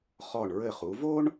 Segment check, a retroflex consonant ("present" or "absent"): present